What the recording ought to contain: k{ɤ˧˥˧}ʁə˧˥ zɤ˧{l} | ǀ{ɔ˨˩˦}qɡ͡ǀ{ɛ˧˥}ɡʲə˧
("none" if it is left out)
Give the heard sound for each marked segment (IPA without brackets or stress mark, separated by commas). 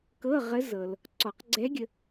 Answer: ɤ˧˥˧, l, ɔ˨˩˦, ɛ˧˥